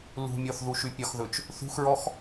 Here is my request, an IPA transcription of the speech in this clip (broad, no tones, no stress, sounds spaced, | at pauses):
l ṳ mʲ ɔ θ ð u ʃ y pʲ ɒ x ð ɵ t͡ʃ | θ ṳ x ɹ ɔ x